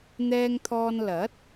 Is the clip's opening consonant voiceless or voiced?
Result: voiced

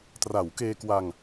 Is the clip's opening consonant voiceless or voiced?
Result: voiceless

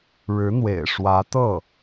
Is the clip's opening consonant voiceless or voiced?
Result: voiced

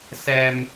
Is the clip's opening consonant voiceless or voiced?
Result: voiceless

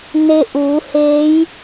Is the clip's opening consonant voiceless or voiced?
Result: voiced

